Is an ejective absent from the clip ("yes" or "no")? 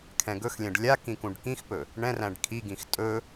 no